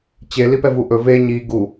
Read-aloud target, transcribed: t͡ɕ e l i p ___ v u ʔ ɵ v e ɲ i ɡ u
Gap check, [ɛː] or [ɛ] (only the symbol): ɛ